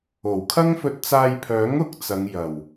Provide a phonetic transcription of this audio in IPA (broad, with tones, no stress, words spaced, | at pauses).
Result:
o˨˩wkʰɐ˥ŋfɵ˧t̚ t͡saː˧jpʰœː˨˥ŋʊ˨˥k̚ t͡sɐ˨˧ŋjɐ˨˩w